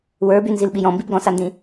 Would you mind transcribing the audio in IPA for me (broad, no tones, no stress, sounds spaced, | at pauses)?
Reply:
w ə˞ b y n z i l ɓ i j ɔ̃ m b i b ɡ ɔ̃ s a n d ĩ